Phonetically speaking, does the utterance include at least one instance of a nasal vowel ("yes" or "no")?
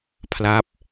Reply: no